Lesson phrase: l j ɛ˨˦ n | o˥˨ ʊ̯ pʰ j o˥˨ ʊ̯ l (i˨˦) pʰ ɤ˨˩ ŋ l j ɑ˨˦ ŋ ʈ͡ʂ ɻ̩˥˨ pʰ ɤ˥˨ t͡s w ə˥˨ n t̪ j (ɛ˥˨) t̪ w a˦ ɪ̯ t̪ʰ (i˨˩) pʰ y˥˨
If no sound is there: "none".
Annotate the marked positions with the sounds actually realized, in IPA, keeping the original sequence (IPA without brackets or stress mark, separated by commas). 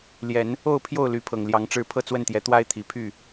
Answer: y˨˦, ɛ˨˦, i˨˩